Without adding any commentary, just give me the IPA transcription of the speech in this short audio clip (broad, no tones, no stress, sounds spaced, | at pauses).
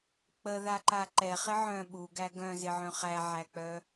k͡p ə ð a ǃ a ǃ ɛ χ ɪ ʕ œ̃ ɓ u ɡ æ ɡ œ̃ z ɪ ʕ œ̃ χ æ ʕ æ k͡p œ